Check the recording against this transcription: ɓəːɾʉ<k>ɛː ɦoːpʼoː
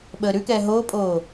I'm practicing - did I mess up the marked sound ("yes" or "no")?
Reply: no